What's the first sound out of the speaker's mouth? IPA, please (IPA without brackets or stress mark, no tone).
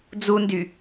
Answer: d͡z